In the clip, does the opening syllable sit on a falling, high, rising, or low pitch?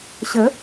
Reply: rising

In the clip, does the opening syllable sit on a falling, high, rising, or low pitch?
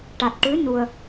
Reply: low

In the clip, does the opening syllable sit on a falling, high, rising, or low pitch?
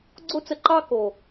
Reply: high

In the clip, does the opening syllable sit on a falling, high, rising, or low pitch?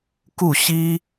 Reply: falling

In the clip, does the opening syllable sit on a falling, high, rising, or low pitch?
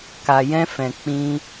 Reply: low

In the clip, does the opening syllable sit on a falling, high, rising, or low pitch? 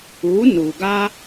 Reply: rising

